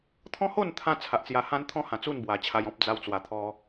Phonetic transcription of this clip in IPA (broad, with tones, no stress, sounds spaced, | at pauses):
t̪ʰ ɔ̃˦ h o˥˧ n t̪ʰ ã˧ t͡sʰ a˨ ʔ t͡s j a˧ h ã˦ n t̪ʰ ɔ̃˦ h ã˨˩ t͡s u˥˧ n b w a˨˩ t͡ɕʰ a˧ j ɔ̃˦ p̚ d͡z a˧ w t͡s w a˨˩ t̪ʰ ɔ˧